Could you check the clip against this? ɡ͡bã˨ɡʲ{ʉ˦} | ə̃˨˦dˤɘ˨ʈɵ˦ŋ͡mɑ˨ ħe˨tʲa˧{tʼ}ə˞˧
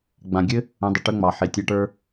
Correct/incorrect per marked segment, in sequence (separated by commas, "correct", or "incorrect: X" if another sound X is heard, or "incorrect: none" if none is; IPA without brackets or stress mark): incorrect: ɘ˦, incorrect: ʈ